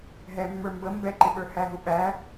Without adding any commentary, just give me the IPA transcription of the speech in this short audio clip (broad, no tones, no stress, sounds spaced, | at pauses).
ɦ ɛ mː ə˞ m b ə m b ɛ ǃ ɪ ɓ ə˞ h æ ɦ u ɓ æ